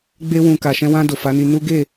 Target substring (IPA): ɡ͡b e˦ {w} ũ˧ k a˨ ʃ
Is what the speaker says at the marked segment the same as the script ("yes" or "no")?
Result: yes